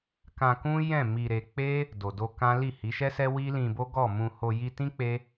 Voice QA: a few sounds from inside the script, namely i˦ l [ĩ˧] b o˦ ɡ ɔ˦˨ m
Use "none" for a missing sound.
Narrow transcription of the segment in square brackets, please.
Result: ĩ˧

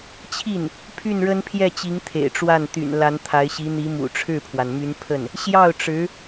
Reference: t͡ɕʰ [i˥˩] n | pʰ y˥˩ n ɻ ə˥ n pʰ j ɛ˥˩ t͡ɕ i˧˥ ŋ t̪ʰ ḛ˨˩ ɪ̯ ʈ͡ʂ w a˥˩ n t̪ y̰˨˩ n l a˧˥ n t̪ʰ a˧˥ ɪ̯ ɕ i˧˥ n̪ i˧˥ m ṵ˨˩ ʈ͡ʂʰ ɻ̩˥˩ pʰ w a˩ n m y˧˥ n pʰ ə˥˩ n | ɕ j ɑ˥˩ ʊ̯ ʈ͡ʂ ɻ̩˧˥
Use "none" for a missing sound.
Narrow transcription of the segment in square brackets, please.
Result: i˥˩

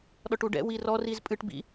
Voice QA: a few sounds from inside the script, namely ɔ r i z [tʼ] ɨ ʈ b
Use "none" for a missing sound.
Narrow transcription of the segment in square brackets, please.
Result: pʼ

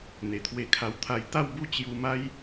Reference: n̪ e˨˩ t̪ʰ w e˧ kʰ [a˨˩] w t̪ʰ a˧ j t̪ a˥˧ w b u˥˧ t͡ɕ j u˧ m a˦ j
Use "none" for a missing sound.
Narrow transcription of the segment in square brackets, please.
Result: a˧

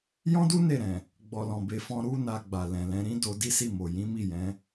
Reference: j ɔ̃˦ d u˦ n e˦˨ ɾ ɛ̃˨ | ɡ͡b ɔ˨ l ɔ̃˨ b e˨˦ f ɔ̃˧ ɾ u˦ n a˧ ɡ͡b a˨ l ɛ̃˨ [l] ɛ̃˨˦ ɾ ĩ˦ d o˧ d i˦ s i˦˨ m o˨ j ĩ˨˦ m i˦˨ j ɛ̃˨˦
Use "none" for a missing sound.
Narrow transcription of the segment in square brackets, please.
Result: l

